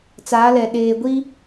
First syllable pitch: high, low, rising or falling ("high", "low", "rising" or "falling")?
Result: rising